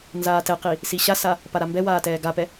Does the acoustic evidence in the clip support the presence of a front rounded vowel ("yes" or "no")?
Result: no